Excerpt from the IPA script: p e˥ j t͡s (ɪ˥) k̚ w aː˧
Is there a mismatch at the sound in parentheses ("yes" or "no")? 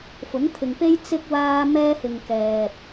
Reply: yes